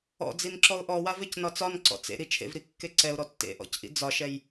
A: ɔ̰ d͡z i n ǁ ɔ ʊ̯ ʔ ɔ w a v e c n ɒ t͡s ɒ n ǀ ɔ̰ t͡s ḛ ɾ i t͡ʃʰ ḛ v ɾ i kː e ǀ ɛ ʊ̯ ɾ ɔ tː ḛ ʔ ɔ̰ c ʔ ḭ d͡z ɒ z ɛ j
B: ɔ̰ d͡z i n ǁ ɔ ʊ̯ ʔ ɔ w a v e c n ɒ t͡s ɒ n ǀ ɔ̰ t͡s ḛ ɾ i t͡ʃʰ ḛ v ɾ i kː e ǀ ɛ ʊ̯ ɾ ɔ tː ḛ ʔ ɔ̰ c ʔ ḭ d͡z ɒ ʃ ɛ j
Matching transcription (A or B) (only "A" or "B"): B